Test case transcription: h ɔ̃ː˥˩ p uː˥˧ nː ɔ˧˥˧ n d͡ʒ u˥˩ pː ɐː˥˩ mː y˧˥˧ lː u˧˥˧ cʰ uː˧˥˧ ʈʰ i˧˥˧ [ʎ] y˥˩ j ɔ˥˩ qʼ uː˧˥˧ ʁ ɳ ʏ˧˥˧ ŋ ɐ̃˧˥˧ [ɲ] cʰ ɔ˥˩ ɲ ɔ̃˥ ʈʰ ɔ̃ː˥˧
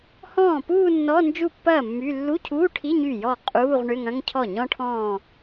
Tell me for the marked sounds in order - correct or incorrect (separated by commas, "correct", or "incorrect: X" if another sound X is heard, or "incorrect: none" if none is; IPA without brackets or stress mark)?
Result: incorrect: ɲ, incorrect: ŋ